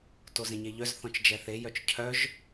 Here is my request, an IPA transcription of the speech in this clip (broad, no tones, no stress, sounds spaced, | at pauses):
t o z ẽ ɲ e ʎ œ z θ ɔ̃ t͡ʃ d͡ʒ ɛ θ e j œ t͡ʃ cʰ œ ʒ